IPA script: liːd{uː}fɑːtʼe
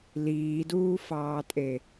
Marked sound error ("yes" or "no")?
no